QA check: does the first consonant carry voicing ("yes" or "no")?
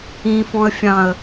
no